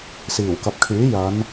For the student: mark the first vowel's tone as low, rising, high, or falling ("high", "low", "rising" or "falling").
low